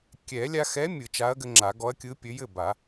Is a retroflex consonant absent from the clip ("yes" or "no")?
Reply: yes